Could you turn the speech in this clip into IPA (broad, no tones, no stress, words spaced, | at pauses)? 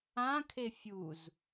ãkʰe fʲuz